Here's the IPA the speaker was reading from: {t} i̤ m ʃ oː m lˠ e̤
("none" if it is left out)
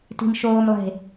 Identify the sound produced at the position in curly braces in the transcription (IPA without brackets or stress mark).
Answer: t